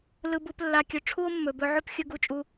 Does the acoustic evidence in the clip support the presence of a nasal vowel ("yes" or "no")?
no